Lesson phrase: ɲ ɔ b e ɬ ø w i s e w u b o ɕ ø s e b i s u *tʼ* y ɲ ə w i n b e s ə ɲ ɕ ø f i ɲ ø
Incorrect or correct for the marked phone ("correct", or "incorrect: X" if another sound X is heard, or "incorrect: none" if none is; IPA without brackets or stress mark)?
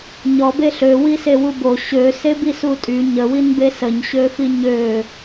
correct